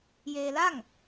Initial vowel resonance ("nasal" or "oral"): oral